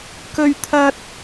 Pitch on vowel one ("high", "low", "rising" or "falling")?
high